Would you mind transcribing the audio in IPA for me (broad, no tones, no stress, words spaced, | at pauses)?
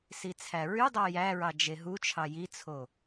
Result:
sit͡sʰæɹydˤæ jæɹɑ d͡ʒeɦut͡ʃʰɑ jit͡sʰo